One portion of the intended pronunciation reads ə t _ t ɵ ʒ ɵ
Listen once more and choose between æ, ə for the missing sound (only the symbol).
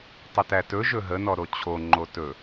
æ